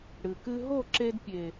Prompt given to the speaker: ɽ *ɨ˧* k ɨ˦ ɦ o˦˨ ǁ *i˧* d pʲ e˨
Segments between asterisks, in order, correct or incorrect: incorrect: ɨ˨, incorrect: e˧

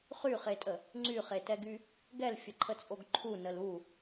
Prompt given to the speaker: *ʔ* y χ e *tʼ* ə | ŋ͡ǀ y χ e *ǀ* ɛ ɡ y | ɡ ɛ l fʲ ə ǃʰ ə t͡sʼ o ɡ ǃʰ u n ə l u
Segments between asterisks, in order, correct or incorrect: incorrect: χ, correct, incorrect: t

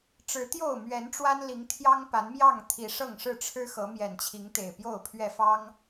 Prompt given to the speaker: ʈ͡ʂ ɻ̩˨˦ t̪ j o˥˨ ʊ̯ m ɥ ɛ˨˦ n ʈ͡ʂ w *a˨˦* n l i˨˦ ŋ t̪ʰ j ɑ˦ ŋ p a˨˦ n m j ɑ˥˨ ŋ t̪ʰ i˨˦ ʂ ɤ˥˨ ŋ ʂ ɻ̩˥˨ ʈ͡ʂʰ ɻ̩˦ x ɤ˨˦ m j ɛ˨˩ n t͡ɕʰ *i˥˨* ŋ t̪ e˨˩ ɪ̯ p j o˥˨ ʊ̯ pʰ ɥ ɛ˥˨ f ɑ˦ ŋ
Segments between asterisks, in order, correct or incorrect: incorrect: a˦, incorrect: i˨˦

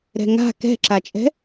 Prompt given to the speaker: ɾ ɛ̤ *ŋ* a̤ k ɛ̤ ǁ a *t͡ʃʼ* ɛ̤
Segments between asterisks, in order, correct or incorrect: correct, correct

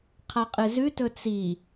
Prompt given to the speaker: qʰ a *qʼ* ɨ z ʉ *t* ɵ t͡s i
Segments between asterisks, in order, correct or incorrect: correct, correct

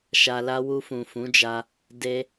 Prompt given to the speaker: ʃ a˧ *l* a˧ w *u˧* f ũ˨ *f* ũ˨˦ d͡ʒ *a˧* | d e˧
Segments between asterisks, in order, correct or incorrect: correct, correct, correct, correct

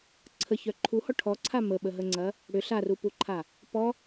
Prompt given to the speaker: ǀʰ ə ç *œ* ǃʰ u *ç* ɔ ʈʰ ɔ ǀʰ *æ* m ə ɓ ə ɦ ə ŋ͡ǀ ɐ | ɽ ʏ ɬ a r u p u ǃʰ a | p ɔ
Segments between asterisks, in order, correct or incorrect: correct, incorrect: h, incorrect: a

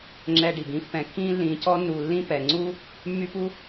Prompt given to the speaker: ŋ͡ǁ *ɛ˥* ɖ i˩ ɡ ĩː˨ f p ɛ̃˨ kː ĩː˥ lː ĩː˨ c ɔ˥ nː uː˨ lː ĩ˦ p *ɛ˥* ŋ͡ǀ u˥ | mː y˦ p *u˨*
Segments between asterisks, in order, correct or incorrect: incorrect: ɛ˨, incorrect: ɛ˩, incorrect: u˥

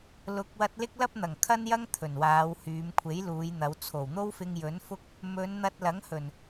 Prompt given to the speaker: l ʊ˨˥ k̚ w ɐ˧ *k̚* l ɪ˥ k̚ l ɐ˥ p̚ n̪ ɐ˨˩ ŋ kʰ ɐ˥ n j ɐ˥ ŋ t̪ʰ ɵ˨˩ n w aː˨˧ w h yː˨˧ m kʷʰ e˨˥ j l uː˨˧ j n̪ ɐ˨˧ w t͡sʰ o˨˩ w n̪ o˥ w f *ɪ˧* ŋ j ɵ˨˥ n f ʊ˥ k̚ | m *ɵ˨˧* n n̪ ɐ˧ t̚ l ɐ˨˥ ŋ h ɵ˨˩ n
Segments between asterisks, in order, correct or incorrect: incorrect: t̚, correct, correct

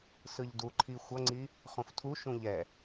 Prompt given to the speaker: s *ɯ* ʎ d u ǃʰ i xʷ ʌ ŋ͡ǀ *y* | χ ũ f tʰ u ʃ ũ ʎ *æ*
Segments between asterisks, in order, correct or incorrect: correct, incorrect: i, incorrect: ɛ

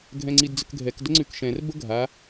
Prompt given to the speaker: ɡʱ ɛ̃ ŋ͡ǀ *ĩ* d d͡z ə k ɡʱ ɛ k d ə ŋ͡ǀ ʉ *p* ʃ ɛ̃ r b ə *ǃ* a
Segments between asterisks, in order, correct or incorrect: incorrect: i, incorrect: k, incorrect: ɡʱ

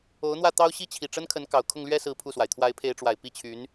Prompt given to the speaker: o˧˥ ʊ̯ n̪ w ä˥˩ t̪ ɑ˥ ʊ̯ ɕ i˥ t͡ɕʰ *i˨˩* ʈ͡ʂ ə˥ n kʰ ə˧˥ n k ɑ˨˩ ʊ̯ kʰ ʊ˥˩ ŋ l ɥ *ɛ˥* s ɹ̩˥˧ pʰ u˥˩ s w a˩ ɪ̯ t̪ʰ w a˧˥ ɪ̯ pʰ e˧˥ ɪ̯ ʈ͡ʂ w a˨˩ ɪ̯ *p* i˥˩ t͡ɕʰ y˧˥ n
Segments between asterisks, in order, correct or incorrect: correct, correct, correct

